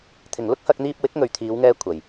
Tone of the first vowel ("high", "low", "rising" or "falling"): low